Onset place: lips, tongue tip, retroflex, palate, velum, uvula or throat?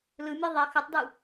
tongue tip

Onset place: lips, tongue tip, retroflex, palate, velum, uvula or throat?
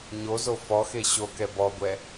palate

